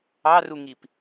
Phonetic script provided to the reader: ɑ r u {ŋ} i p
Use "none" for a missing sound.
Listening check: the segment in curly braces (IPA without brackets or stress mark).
ŋ